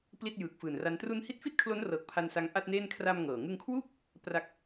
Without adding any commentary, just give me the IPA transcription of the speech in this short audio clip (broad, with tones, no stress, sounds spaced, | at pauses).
p l i˥˩ t̚ j ɯː˨˩ k̚ f ɯː˨˩ n r a˦˥ n t r u˦˥ n h i˦˥ t̚ f i˥˩ t̚ kʰ l o˦˥ n r ɤː˨˩ k̚ pʰ a˧ n s a˧ ŋ ʔ a˥˩ t̚ n eː˥˩ n kʰ r a˧ m ŋ ɤː˨˩ ŋ ɯ˧ ŋ kʰ w uː˥˩ k̚ | p r a˨˩ k̚